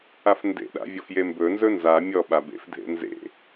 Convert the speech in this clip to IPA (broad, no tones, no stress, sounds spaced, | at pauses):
a f n d ḛ ɗ a̰ vʲ ɔ f j e m b ɵ n z ɵ n z a mʲ ɔ ɓ a b ḛ f dʱ ḛ n z ḛ